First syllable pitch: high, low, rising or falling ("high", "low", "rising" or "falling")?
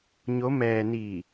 rising